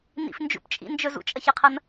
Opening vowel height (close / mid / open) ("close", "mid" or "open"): close